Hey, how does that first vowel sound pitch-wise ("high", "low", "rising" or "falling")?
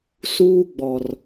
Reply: high